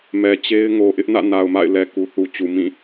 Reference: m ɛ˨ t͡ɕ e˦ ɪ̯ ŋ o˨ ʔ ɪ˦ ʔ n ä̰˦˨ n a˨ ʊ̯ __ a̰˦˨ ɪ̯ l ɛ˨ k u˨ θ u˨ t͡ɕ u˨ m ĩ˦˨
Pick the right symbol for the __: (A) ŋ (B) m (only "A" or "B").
B